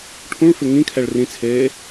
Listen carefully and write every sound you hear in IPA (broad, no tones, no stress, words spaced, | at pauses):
ʈʰũɭfɪ ŋĩkʰɛɭ rĩt͡sʰeː